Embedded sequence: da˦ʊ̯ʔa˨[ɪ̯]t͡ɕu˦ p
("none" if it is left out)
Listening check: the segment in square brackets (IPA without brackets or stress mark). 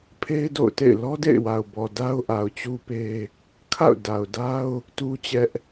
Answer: ʊ̯